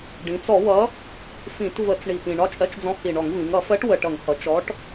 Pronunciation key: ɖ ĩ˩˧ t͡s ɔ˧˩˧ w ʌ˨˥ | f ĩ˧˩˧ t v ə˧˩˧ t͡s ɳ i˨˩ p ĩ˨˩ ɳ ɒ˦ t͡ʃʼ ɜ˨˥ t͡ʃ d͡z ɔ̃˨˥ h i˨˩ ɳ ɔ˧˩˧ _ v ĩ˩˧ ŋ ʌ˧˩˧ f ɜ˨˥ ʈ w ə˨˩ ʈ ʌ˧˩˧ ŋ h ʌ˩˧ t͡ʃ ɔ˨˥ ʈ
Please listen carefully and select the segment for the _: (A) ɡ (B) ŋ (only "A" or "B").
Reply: B